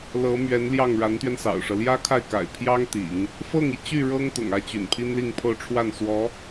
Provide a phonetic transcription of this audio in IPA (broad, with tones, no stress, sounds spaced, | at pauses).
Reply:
l ɤ˧˥ m ɥ ɛ˧˥ n l j ɑ˥˩ ŋ ɻ a˧˥ n t̪ ɥ ɛ˧ n s ɑ̰˨˩ ʊ̯ ʂ ɤ˦ l j ä˥ kʰ a˥˩ ɪ̯ k a̰˨˩ ɪ̯ pʰ j ɑ˥ ŋ t̪ ḭ˨˩˦ ŋ | f ɤ˥˩ ŋ i˩ t͡ɕ y˥˩ ɻ ɤ˥ ŋ t̪ ʊ̰˨˩ ŋ ä˥˩ t͡ɕ y̰˨˩ n pʰ i˥ n l i˥˧ ŋ pʰ o˥˧ ʊ̯ ʈ͡ʂʰ w a˥˩ n s w ɔ˧˥